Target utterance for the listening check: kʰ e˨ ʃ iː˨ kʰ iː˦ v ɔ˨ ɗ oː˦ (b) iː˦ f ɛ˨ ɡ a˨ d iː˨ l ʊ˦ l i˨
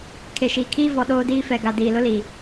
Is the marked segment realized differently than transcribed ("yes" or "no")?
yes